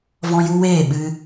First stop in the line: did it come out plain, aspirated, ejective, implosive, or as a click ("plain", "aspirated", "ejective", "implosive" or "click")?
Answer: implosive